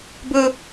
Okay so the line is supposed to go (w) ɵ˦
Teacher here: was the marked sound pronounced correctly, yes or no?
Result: no